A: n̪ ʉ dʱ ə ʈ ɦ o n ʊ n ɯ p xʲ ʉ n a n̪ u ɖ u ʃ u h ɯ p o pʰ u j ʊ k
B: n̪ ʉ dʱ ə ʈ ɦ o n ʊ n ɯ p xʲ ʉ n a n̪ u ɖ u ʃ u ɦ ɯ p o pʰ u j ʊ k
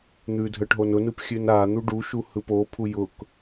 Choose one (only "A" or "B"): A